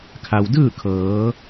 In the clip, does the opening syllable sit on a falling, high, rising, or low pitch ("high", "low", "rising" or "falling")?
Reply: low